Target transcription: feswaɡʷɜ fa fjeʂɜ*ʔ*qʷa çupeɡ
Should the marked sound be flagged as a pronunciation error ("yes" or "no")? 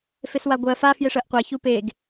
no